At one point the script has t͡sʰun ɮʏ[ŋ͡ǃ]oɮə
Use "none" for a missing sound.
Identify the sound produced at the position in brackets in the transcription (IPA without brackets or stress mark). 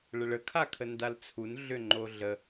ŋ͡ǃ